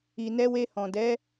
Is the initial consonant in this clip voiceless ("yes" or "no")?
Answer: no